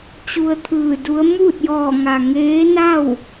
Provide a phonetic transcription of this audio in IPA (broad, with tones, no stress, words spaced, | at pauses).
t͡ɕu˧ə̯t̪ʰɯː˧˩du˧˥ə̯ muː˥˨t̚jɔː˧˩ŋa˩ ŋeː˧˥na˥˨w